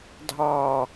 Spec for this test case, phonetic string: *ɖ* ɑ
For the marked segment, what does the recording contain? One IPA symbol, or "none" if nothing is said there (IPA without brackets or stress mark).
dʱ